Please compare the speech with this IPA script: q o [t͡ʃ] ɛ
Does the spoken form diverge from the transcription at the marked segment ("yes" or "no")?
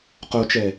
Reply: no